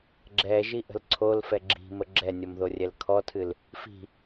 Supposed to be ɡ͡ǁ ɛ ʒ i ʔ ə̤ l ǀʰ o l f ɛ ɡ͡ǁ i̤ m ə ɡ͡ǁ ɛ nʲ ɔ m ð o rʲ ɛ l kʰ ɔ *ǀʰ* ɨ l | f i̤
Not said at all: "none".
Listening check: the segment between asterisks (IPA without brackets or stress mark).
tʰ